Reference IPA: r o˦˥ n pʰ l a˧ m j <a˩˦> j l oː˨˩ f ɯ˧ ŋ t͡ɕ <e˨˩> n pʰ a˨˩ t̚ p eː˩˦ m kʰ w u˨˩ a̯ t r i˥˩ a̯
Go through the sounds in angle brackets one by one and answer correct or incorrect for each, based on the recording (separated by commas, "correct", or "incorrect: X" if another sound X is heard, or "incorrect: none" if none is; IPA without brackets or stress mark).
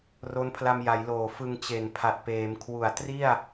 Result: correct, correct